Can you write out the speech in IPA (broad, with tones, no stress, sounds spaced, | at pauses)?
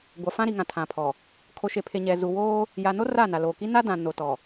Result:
ɡʷ a˨ f ã˦ ɾ i˨ ŋ ã˨ tʰ ã˨ pʰ ɔ˨ | kʰ o˨ ʃ e˨ pʰ e˨ ɲ ɛ˨ z u˨ w oː˦ | j a˨ n o˦ r aː˦˨ n a˨ l oː˨ k i˦ n a˦ d ã˨ n o˨ t ɔ˨